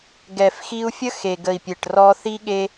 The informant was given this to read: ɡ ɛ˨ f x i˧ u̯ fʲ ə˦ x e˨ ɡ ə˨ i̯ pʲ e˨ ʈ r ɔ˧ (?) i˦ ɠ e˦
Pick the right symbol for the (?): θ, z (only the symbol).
θ